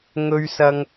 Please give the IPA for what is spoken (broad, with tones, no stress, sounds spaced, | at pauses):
ŋ ɵ˧ ɥ s ɐ˧ ŋ